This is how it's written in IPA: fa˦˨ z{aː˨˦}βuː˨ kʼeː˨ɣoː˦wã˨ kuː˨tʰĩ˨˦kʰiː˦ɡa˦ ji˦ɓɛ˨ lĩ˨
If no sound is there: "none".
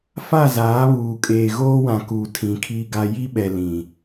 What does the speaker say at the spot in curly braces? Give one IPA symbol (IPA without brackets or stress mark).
aː˨˦